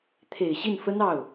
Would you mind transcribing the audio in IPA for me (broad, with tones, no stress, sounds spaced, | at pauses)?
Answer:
t̪ʰ e˨˩ ɪ̯ ɕ i˥˩ n f ə˥ n ɑ˥˩ ʊ̯